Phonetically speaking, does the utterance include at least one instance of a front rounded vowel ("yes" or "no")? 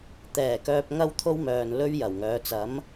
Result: yes